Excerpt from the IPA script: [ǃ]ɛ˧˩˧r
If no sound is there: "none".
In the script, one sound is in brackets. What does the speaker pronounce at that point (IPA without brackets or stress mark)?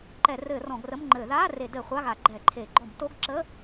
ǃ